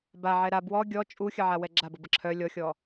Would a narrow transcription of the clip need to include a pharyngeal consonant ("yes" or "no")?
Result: yes